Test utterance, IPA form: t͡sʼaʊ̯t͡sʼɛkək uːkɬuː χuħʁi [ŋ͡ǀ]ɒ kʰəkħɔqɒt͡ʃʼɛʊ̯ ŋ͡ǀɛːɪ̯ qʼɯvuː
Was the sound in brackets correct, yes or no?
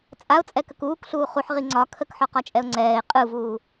yes